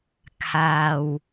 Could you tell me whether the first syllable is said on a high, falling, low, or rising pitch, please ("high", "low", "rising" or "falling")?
low